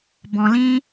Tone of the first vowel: low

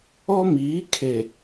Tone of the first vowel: high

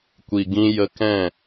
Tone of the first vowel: low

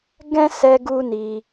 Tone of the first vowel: high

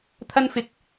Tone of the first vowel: high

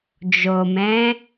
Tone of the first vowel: low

